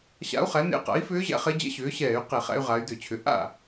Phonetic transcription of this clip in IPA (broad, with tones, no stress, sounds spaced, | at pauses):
ɕ a̰˧˥ u̯ χ æ˩˥ n ḛ˧˥ q a̰˩˥ i̯ f ʏː˧˥ ʑ æ̰˧ χ e˧˥ d͡ʑ ɛ̰˧˥ ɕ ʏː˩˥ ɕ ɛː˧˩˧ y̯ q e˧˩˧ χ æ̰˧ y̯ ʁ a˩˧ y̯ d ʏ˧˩˧ t͡ɕʰ ʏ˩˧ ʔ a̰˥˩